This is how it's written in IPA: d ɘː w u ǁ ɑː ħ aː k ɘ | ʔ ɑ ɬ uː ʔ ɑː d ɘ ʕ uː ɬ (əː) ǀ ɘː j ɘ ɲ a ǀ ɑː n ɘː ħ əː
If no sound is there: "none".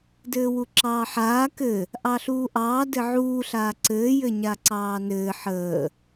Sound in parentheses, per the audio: aː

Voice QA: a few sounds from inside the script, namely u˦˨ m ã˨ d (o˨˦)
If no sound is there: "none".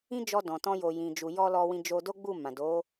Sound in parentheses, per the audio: o˨˦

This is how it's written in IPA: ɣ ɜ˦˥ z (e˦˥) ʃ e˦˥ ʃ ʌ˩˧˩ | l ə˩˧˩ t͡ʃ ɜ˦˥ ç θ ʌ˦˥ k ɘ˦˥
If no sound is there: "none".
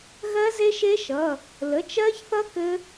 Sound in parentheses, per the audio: e˦˥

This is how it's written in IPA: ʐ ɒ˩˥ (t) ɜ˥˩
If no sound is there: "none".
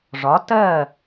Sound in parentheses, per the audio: t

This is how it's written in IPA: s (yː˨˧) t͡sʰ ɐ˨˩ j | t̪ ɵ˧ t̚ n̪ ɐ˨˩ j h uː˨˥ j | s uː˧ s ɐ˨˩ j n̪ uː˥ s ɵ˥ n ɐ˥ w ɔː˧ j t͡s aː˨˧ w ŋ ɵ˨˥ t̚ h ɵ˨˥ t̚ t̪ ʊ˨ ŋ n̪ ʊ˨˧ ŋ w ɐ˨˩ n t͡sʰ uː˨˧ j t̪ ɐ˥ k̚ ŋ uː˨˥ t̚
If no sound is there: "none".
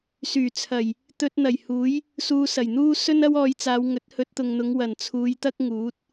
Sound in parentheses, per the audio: yː˨˩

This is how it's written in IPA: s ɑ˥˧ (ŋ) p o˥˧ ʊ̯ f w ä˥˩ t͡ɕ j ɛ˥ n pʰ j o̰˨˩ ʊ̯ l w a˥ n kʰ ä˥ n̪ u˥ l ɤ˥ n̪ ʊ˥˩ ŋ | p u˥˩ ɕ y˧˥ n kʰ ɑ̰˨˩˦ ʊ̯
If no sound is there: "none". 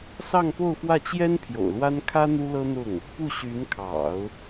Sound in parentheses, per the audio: ŋ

